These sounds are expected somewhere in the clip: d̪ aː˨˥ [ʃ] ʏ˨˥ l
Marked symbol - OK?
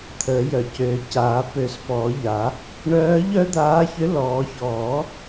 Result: no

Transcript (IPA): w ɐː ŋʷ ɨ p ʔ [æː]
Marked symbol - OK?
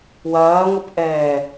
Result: no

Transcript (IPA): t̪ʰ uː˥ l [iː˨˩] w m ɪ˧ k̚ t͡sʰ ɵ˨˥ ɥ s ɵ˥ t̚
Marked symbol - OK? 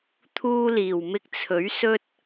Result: yes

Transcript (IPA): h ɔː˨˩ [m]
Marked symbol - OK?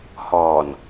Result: no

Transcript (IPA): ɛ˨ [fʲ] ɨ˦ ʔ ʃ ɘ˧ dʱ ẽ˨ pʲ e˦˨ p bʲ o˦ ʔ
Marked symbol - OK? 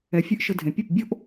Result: yes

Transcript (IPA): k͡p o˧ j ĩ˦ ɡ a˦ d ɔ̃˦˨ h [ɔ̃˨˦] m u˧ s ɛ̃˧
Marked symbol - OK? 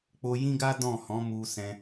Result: yes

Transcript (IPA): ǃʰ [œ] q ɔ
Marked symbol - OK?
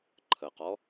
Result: no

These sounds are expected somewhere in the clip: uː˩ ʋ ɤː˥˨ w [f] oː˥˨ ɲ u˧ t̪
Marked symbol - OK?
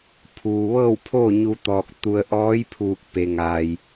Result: no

